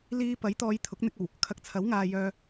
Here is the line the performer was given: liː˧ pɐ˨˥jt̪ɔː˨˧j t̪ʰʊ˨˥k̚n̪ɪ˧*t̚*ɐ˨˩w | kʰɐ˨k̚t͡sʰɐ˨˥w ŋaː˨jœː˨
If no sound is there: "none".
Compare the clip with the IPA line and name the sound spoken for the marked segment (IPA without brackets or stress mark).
k̚